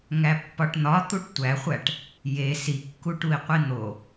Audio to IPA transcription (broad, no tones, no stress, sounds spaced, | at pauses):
ŋ æ pː ɒ ʈ n̪ ɒ t̪ u ʈ tʷ æ χʷ æ ʈ | j e s i kː u ʈ u i̯ qʷ i n̪ o